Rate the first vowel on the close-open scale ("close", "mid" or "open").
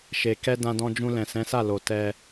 mid